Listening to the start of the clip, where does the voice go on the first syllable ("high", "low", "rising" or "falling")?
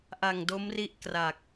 low